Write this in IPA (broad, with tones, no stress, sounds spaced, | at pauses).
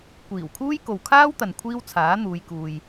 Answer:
kʷ iː˨˩ w kʰ uː˥ j k o˨ w kʰ aː˥ w t̪ ɐ˨ n kʷʰ iː˥ w t͡sʰ aː˨˥ n̪ uː˨˧ j k uː˧ j